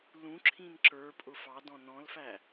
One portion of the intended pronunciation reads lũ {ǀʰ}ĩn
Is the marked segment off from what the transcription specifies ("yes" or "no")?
yes